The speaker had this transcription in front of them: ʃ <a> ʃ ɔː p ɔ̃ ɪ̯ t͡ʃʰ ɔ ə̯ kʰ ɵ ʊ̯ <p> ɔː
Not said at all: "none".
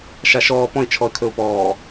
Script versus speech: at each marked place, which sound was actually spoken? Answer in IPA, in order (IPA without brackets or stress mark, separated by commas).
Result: a, p